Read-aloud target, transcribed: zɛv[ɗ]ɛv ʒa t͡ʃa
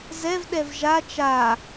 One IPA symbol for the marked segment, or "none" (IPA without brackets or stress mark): ɗ